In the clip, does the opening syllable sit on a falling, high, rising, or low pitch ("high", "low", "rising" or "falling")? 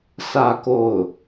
falling